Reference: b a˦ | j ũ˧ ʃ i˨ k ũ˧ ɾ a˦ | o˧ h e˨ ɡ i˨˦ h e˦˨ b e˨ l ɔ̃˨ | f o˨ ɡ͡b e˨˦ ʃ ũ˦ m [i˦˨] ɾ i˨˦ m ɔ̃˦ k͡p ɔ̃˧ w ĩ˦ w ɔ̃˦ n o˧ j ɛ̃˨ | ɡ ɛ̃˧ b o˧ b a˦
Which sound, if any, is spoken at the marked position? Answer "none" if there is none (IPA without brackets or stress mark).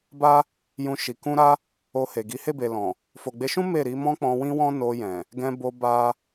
e˦˨